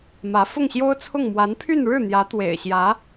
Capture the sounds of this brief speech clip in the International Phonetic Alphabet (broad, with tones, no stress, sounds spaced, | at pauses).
m ä˧˥ f ʊ˥˩ ŋ ɕ j o˥ ʊ̯ t͡sʰ ʊ˥˩ ŋ m w a˧˥ n pʰ y˥˧ n ɻ ɻ̩˥˩ n̪ j ä˧˥ t̪ w ḛ˨˩ ɪ̯ ɕ j ä˧˥